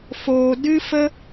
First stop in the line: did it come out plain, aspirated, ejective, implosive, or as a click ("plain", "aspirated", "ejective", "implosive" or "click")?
plain